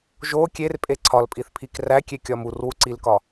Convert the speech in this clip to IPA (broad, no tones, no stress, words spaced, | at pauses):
ʒo kʲerpʼe ǀʰɒlpʼiθpʰik rækʲekʲɒm urwuǀilkɒ